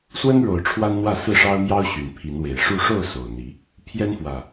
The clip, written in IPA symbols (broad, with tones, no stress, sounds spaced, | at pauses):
s w ə˦ n ɻ o˨˩ ʊ̯ ʈ͡ʂʰ w a˦ n n̪ w ä˥˨ s ɹ̩˥˨ ʂ ɑ˦ ʊ̯ m j ɑ˦ ʊ̯ ɕ y˨˩ n pʰ i˨˦ n w e˨˩ ɪ̯ ʂ u˥˨ ʂ o˥˨ ʊ̯ s o˨˩ ʊ̯ n̪ i˨˦ | pʰ j ɛ˦ n f w ä˨˩